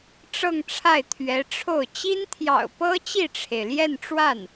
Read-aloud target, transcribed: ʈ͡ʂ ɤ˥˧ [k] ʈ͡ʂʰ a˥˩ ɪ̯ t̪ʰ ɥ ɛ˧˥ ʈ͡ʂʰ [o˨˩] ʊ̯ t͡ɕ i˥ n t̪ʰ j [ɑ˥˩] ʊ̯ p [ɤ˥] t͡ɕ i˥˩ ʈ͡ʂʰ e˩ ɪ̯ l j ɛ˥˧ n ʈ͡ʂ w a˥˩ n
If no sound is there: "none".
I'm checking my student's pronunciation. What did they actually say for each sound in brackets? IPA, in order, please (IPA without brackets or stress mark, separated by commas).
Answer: ŋ, o˥˩, ɑ̰˨˩, ɤ˥